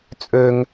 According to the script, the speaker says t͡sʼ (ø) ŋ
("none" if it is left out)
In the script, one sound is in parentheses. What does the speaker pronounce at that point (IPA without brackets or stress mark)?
ø